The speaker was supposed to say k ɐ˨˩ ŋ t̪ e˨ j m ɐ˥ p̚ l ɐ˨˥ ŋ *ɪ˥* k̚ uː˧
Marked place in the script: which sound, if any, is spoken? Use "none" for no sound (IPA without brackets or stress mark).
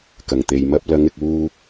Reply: ɪ˨